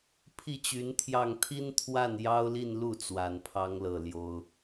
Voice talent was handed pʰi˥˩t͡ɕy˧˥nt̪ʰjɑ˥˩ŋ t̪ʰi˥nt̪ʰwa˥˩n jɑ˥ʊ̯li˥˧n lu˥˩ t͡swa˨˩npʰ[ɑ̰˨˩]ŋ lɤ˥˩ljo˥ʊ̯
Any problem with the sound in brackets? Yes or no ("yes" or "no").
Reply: yes